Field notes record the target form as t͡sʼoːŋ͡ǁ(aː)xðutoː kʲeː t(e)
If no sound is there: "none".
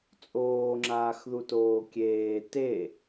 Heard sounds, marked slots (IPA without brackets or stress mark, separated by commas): aː, e